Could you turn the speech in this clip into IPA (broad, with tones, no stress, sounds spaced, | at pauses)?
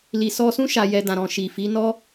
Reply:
l i˨ s ɔ˧ s ũ˦ ʃ a˧ j ɛ˧ d ã˨ ɾ ɔ̃˨ ʃ i˨ f i˨˦ n ɔ˦